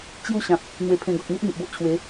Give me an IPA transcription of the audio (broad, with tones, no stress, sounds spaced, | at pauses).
t͡ɕ j u˦ ɕ ã˨ p̚ | n̪ w e˧ pʰ ẽ˧ ɡ ɔ˨ k̚ n̪ i˦ ʔ n̪ i˨ ʔ b o˦ ʔ t͡ɕʰ w e˨˦